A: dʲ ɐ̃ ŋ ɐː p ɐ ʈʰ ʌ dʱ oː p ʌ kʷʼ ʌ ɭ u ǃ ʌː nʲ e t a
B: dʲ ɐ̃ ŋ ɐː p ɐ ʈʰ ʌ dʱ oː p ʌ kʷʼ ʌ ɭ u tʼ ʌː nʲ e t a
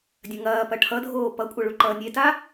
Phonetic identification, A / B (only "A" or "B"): A